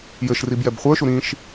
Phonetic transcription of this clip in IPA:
jɘʃrib jɛbχʷə˞ʃu ɾĩʃ

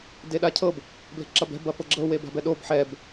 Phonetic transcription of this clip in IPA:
deɗacʰɤb | ble̤ǁɐbɛ̤ bɐfɤɡ͡ǁɤ weba̤bɛɗob ħɛb

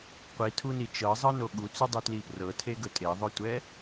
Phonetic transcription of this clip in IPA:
qʷitʰuni t͡ʃɤzˤɤno ɠut͡sydˤytli prɤtʰeɡɵ tʼeðˤɵtʷɛ

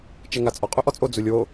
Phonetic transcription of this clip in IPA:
t͡ʃɛŋat͡sʼɔ qʼuʔɔt͡sʼo d͡zulʲwo

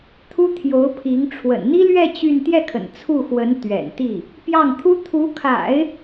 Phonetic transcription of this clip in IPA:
t̪ʰu˥ t̪ʰjo˧˥ʊ̯pʰi˧˥ŋ ʈ͡ʂʰwə̰˨˩nn̪i˥lɥɛ˥˧ t͡ɕy˥˧n t̪jɛ˥˩kʰə̰˨˩n t͡sʰu˥˩xwə˧˥n t̪ɥɛ̰˨˩nt̪i˥˩ | pjɑ˥˩ŋ t̪ʰu˥ t̪ʰu˧˥kʰa̰˨˩˦ɪ̯

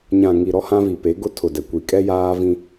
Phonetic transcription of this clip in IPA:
ɲã˨ŋi˨ ɾɔ˦hã˦vi˨ pe˨˦ɡʊ˦ tʰʊ˨ dɛ˨kʷi˨ kʼɛ˦jaː˦ vĩ˦

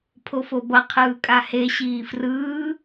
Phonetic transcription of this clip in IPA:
pʰofobʌ qʰɯːkʼahe ɕiːfrɯː

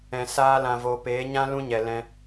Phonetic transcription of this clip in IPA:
ɛ̃˨ saː˧lã˨voː˨ peː˨˦ɲã˦ lũ˦ɲɛ˨lɛ̃˧

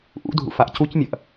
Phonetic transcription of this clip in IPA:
ʔṵdʱṵ faʔcucmʲɐʔ

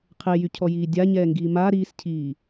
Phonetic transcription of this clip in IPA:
qʰejycʰɔjiː dʲaɲɛːŋɡiː ma ɾiːscʰiː

